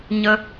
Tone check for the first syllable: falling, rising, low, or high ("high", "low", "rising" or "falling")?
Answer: high